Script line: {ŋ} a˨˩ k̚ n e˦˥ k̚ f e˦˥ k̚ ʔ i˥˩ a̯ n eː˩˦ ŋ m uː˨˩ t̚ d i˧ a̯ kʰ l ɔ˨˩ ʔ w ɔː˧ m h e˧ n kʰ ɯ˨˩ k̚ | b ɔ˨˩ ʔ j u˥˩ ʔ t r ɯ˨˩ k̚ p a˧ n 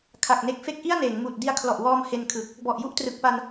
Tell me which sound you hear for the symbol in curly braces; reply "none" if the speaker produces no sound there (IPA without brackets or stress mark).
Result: kʰ